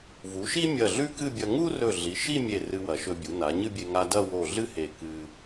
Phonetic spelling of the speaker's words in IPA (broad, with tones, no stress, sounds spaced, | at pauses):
v u˩˧ ʃ i˥ mʲ ɐ˧˩ ɮ ʉ˥ k ɨ˥˧ bʲ ɐ˧ ŋ u˥ r ɵ˧˩ ɮ i˩˧ ʃ i˥˧ mʲ e˧˩ r ɨ˧ w ɐ˩˧ ʃ ɵ˧ bʲ u˩˧ n a˩˧ ɲ ɨ˥˧ bʲ e˧ ŋ a˧ d ɐ˥˧ w o˧˩ ɮ ɨ˥ h e˧˩ k ɨ˧